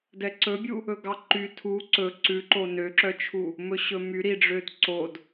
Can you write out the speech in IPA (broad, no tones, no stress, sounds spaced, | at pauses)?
d ɛ ǀ ɵ bʲ u | ɵ ɡ ɑ ǃ y tʰ u ǀ ɵ ǀ ʉ ǃ o n ø ǁ œ t͡ʃʰ u | m ɵ ɕ ɵ m y ɾ i ɖ͡ʐ ø d ǀ o d